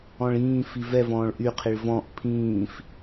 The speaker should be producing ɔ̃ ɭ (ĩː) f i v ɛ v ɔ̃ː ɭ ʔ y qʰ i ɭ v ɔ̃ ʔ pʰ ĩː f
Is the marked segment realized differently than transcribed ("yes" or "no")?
no